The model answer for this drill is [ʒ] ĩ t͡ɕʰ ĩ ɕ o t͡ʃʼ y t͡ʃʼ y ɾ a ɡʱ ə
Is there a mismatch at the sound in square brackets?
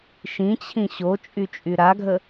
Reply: yes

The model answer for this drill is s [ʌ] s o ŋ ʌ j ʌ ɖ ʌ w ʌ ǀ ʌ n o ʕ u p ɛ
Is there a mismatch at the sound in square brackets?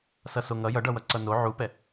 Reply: no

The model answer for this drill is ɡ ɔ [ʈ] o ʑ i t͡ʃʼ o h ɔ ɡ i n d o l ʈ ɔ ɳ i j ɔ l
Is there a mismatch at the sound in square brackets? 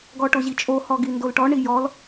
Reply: no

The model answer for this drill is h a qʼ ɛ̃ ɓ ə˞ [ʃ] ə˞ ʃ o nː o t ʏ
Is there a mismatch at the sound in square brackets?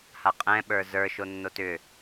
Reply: yes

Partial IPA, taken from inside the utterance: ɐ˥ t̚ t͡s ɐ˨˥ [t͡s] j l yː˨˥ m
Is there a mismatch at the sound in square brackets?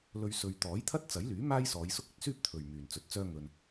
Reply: yes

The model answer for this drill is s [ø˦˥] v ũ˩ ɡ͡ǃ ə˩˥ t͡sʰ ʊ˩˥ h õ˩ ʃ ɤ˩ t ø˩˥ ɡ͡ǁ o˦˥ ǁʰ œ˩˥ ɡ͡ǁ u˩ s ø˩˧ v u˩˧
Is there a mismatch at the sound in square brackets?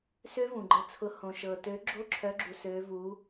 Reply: no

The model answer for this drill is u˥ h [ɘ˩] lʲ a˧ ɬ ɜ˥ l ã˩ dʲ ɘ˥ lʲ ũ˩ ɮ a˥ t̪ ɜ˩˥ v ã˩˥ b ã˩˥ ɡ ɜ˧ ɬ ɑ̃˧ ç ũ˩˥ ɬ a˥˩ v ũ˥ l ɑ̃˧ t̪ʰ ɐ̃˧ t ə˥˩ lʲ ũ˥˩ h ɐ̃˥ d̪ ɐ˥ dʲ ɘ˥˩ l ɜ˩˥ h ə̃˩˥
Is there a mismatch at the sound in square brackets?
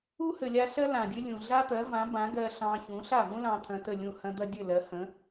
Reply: no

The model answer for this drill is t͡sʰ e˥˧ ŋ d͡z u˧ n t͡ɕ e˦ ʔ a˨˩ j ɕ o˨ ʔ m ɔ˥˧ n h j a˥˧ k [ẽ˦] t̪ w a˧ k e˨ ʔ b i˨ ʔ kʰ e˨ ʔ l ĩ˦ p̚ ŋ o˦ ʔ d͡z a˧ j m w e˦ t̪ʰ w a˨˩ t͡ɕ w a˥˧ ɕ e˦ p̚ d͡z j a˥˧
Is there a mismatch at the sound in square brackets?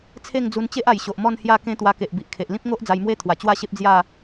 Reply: no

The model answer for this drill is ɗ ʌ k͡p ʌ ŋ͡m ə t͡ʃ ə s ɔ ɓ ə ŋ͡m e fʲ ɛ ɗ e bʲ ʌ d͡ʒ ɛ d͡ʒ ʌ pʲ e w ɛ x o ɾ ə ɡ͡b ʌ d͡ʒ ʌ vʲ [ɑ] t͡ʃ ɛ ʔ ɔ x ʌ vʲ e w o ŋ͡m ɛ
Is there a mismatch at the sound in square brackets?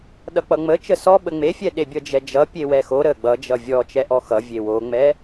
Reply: yes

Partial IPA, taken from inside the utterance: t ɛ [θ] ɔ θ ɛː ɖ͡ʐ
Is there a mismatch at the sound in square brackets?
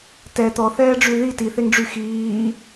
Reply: yes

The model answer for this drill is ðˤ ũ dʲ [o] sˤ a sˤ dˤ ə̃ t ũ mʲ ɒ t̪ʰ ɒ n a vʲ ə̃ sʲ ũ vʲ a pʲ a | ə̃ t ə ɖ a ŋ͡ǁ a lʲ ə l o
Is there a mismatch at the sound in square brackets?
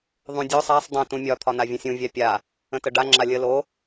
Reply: no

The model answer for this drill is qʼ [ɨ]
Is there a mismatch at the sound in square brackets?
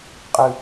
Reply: no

